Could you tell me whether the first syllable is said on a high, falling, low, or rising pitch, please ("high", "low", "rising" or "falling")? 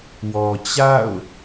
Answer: low